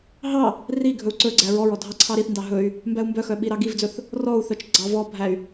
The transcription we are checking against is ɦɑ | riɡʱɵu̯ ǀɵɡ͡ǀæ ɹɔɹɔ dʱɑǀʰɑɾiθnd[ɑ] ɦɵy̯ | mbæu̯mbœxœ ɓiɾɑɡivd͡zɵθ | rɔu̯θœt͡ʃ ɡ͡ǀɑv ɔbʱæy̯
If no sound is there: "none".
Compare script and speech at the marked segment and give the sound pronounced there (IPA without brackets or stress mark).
ɑ